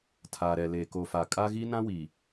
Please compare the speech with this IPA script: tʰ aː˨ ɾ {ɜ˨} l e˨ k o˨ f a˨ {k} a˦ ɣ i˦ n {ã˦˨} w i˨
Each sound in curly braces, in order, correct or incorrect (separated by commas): incorrect, incorrect, incorrect